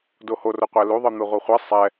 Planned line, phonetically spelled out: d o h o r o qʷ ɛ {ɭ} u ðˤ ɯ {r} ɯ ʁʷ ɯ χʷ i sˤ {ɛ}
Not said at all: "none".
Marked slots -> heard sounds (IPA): l, n̪, ɛ

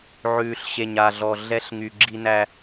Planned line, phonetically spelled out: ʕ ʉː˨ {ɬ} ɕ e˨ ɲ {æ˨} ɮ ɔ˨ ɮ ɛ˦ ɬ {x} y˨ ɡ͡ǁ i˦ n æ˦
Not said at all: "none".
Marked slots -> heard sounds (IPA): ɬ, a˨, ŋ

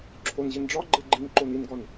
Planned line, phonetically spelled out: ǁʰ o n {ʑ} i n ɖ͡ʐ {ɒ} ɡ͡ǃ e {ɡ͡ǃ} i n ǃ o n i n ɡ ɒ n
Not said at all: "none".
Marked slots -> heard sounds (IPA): ʑ, ɒ, ɡ͡ǃ

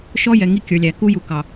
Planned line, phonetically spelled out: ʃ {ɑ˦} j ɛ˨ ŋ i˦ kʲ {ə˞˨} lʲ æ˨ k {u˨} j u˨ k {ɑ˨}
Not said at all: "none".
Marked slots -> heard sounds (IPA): ɔ˦, ə˞˨, u˦, ɑ˨

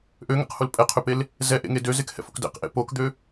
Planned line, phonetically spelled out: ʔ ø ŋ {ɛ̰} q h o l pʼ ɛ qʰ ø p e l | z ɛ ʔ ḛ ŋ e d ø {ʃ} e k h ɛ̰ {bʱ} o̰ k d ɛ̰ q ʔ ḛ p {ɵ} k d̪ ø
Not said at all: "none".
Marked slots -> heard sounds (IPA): ɛ̰, z, f, o

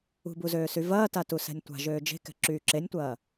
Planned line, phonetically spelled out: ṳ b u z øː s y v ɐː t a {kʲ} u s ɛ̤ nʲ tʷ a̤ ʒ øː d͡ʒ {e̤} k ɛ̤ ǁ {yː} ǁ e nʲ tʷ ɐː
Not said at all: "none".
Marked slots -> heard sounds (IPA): t, e̤, yː

